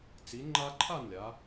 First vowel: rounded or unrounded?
unrounded